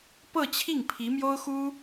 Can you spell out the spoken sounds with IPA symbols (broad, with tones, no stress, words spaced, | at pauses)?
pɤ˥˧t͡ɕʰi˥˩ŋ pʰi˧˥mjo˥ʊ̯xu˥